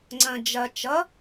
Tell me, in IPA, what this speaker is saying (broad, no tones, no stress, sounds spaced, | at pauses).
ŋ͡ǀ ɐ̃ d͡ʒ ɐ t͡ʃ ʌ